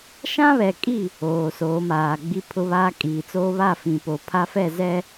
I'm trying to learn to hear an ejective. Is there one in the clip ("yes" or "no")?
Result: yes